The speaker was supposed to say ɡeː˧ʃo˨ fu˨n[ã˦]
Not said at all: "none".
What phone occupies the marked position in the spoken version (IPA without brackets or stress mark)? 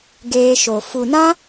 ã˦